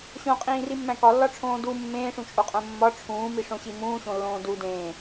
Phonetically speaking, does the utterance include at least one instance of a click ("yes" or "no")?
no